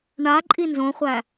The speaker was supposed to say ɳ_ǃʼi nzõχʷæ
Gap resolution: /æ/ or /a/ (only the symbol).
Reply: a